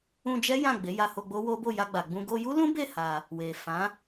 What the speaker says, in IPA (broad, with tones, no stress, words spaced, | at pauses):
ũ˧d͡ʒɛ˦ jã˦˨ɡ͡be˨˦ ja˧ho˧ ɡ͡bo˦wo˦bo˦˨ ja˧ɡ͡ba˨ɡ͡bũ˧ ɡo˧ju˦lũ˦be˦˨ ha˧ | we˨ fã˨˦